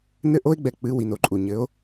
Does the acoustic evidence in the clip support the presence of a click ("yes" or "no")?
yes